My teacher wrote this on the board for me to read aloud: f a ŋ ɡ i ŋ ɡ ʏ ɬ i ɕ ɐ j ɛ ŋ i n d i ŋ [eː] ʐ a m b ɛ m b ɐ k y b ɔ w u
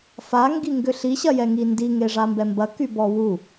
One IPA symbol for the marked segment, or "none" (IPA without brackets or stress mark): e